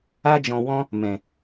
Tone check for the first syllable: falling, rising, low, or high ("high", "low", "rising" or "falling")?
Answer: high